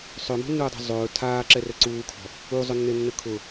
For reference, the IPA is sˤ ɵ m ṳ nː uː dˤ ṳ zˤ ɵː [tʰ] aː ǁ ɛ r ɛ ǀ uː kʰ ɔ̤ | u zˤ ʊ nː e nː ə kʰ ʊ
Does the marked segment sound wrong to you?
no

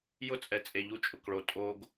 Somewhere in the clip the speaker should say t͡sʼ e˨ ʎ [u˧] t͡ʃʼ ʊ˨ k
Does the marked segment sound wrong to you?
no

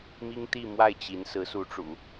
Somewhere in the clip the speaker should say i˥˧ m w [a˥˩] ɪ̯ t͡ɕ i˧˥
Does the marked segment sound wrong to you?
no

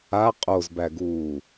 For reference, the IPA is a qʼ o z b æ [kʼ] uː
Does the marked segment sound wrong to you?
yes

